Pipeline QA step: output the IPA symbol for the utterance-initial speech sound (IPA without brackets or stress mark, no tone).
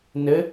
n